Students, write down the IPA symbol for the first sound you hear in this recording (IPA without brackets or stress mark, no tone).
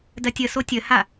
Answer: d